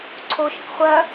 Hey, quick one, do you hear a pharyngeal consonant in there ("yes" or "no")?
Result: no